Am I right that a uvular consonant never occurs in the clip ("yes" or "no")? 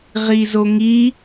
no